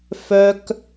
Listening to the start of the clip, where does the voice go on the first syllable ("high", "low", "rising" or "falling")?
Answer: high